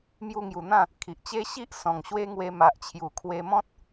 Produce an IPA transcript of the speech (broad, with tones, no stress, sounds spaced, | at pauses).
m j u˧ ŋ j u˨˩ n̪ ã˥˧ | kʰ i˨ ʔ t͡ɕ e˦ ɕ i˦ ʔ s ɔ̃˨˩ ŋ ɕ w e˦ ŋ w e˧ m a˨ ʔ t͡ɕʰ j u˨˩ kʰ w e˧ m ɔ̃˦ t̚